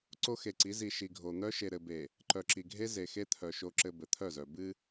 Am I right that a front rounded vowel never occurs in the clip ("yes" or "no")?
no